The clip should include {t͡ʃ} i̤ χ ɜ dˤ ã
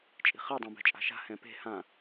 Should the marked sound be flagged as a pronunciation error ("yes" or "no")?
yes